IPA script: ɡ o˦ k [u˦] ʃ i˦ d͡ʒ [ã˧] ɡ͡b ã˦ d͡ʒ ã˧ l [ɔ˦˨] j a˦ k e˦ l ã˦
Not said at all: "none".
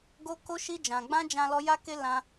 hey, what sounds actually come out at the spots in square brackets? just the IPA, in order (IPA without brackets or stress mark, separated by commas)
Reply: o˦, ã˧, ɔ˦